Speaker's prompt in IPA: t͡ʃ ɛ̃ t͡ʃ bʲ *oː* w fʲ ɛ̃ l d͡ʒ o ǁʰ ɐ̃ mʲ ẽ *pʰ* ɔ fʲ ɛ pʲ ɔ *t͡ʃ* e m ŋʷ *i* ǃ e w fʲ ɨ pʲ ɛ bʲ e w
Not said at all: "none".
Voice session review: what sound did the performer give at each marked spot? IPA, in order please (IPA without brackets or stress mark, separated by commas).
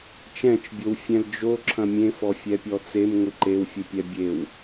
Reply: o, f, t͡s, ɨ